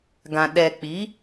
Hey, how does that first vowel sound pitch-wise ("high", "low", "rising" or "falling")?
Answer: low